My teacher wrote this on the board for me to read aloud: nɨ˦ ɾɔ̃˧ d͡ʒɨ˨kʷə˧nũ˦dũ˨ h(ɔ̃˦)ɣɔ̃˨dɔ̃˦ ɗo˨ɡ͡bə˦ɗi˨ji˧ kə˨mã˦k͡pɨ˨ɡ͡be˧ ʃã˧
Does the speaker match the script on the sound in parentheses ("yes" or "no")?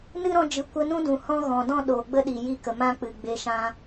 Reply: yes